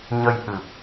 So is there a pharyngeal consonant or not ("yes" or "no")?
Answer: no